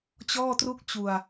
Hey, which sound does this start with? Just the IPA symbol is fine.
t͡ɕ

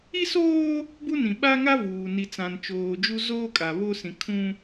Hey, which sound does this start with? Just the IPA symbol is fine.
i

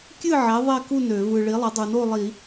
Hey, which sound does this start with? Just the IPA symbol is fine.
kʲ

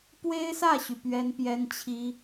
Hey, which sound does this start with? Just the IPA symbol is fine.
p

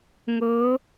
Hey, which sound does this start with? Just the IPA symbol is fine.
ŋ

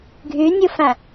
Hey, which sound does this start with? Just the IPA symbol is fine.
ɡʱ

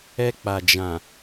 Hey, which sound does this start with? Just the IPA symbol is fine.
ɛ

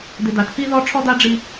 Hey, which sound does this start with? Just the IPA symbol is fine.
d̪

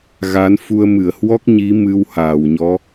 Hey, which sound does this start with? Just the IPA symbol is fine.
ɣ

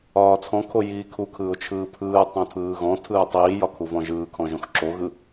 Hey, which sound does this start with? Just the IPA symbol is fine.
ɒː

